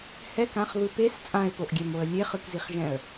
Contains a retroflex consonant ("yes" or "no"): no